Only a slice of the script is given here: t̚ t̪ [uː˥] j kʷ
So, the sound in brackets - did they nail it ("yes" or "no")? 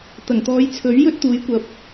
no